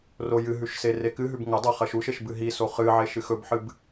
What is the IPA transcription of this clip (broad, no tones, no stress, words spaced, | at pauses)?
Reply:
rojɨɦʉʃ serekɨɦʉb ŋɐ dˤaχɐʃuʃeʃ bɨɦiso χɨʕe ʃɨxɵbħɨb